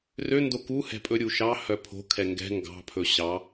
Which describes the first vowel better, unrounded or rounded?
rounded